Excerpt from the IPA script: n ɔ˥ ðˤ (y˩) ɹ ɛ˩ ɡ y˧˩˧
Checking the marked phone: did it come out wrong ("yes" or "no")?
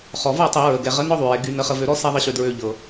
no